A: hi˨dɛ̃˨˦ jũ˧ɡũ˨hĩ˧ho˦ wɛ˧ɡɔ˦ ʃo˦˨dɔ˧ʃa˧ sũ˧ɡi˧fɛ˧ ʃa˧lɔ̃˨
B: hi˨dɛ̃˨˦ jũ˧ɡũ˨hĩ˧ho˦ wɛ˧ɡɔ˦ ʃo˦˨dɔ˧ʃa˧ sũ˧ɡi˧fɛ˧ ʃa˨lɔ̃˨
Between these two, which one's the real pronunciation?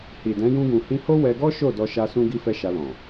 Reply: A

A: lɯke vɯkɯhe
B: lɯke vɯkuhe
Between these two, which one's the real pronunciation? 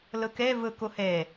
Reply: B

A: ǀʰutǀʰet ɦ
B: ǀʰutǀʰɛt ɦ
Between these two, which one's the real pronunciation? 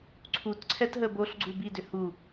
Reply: B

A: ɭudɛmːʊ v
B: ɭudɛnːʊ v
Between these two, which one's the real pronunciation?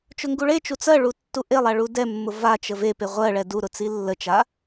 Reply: A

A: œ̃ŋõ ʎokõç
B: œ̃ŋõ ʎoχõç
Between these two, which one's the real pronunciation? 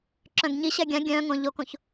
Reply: A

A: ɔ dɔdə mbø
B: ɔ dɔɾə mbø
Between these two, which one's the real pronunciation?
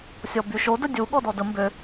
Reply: A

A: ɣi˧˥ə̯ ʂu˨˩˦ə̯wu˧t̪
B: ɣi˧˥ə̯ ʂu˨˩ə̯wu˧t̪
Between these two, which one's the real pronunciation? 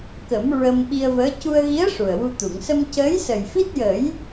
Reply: B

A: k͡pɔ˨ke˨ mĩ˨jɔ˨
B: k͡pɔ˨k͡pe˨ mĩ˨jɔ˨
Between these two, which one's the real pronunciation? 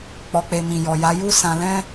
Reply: B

